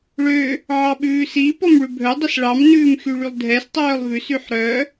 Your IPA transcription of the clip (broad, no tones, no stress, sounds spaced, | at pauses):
ɭ ø | ʕ ɑ ɓ ʉː s i p ɔ m ɭ ʉ bʱ œ dˤ i s ɭ ɑ m n ʉː m x y ɭ y lˠ dʱ ɛ s tˤ œː lˠ v ʉ s y ħ ɾ œ